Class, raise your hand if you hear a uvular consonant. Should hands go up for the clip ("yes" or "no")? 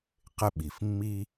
yes